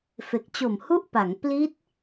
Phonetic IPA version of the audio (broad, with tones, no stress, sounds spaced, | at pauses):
f e˨˩ k̚ t͡ɕ o˨˩ m h u˥˩ ʔ p a˩˦ ŋ p l i˦˥ t̚